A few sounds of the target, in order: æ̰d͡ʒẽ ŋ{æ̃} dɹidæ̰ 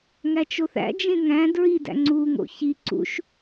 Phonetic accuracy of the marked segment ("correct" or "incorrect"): correct